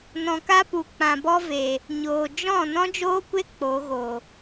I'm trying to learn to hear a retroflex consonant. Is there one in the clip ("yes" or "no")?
no